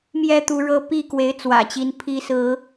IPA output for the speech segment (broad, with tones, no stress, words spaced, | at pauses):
mjɛ˦ t̪u˨˦ɻɤ˦ pi˥˨ kwe˨˦ɪ̯t͡swä̰˨˩t͡ɕi˨˦n pʰi˨˦sɹ̩˨˦